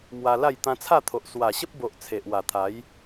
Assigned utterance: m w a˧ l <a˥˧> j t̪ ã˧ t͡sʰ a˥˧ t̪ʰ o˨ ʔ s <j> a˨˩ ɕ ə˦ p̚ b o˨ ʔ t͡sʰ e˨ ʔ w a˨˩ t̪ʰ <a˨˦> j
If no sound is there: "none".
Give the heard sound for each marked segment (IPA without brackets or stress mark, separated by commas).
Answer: a˥˧, w, a˨˦